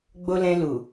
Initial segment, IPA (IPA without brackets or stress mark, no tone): ɡ͡b